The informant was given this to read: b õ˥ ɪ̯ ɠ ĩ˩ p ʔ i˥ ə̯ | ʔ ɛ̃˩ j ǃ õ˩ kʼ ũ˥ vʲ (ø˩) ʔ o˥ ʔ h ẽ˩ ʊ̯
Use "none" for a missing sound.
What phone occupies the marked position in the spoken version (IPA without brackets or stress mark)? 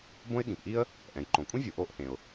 u˩